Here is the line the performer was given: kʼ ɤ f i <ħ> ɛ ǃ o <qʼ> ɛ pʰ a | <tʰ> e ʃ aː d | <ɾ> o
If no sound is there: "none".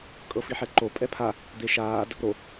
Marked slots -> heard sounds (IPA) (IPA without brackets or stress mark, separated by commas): ħ, pʼ, d̪, ɾ